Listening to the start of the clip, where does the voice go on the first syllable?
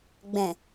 low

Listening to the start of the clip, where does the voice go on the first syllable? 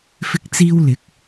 high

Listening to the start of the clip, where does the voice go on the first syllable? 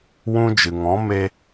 high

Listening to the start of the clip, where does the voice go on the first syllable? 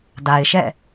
low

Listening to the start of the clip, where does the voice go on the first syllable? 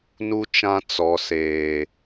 high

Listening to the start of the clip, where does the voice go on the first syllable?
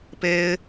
high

